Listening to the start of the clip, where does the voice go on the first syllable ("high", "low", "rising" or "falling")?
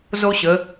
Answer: high